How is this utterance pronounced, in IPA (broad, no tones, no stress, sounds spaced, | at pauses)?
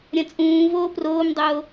ɾʲ ɐ̃ t͡sʼ ũː v oː p r oː m dˤ oː